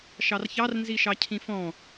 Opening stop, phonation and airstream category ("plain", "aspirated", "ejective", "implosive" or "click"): aspirated